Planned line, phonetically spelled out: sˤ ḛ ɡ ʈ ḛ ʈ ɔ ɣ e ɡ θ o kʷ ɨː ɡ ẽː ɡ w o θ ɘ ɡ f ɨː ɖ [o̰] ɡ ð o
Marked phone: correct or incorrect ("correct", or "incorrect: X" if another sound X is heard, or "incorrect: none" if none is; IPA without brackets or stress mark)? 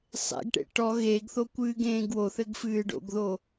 correct